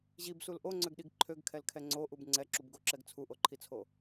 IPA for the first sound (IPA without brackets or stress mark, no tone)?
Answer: ʑ